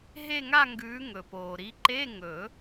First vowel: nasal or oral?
oral